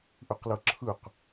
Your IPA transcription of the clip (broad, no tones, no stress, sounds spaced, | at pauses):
ʔ ɯ q l ɤ ǁʰ ɯ q